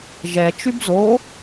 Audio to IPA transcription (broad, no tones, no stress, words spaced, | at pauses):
ʒɛt͡ʃyb zo